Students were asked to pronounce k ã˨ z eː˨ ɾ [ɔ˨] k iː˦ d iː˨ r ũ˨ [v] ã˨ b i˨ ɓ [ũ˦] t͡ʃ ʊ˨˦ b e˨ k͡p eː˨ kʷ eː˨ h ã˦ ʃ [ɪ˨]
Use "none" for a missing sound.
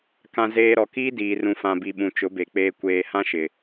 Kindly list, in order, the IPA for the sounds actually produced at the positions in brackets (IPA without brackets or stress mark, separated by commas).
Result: ɔ˨, f, ũ˨, ɪ˨